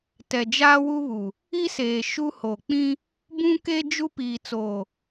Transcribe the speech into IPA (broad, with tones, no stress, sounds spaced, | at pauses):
t ɛ˨ d͡ʒ aː˦ w u˦ β u˨ | i˦ s eː˨ ʃ u˦ h o˨ k͡p ĩ˦ | b ũ˦ k e˦ d͡ʒ u˦ p iː˨ t͡s oː˨